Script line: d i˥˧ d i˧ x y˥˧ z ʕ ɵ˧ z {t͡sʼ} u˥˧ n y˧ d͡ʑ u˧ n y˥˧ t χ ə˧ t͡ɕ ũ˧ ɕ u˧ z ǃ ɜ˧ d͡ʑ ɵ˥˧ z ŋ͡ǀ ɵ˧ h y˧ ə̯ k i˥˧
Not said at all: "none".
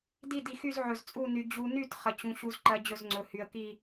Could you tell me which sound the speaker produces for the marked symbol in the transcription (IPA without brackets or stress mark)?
t͡sʼ